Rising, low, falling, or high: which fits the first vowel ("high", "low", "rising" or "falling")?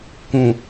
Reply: low